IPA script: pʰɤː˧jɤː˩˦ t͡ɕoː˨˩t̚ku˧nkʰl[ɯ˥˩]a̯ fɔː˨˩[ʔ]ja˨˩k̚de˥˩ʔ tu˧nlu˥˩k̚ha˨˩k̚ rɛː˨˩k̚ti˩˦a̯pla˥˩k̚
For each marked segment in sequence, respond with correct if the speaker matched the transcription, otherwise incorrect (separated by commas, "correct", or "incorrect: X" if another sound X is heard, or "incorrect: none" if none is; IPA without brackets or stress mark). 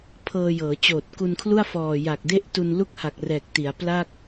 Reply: incorrect: u˥˩, incorrect: none